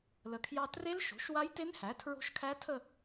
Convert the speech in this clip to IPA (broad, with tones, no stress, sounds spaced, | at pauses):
l ə˩˧ kʰ j ɑ˧ t r e˦˥ l ʃ o̤˩˥ ʃ w a˦˥ j t e˦˥ n h æ˩˥ tʰ ɹ o̤˦˥ ʃ kʰ æ˦˥ tʰ ə˥˧